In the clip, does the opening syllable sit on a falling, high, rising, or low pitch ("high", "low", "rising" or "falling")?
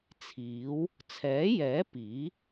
rising